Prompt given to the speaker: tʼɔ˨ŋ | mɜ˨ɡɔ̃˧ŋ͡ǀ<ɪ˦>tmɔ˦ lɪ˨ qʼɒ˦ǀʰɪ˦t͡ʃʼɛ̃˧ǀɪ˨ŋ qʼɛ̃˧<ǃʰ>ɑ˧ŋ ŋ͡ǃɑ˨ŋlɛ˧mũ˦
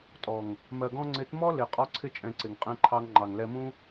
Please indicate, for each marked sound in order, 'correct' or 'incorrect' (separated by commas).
incorrect, correct